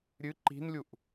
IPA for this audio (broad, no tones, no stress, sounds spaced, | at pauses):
ɾʲ ɨ ǃ i̤ n lʲ u ʔ